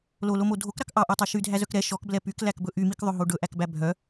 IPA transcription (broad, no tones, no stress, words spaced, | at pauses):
lolomo dʱokɾɑk ʔɑʔotˤɑ ʃydʱæzœk ɾɛ ʃɔkblɛ pyklækbɵ ʔymikðˤɵɦo ɖɵʔækbæ bʱœ